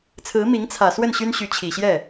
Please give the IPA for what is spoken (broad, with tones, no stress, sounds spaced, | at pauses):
t͡sʰ ɹ̩˧˥ m i˧˥ ŋ t͡sʰ ä˨˩ s w ə˥˩ n ɕ y˥ n ɕ y˧˥ t͡ɕʰ i˨˩ ɕ j ɛ˥˩